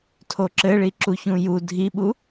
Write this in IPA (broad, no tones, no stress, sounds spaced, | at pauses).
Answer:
tʰ o ǁ ɘ ɭ i ǁ u ç ũ j u dʱ i ɓ u